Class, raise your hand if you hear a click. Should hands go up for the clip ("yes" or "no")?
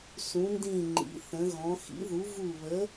yes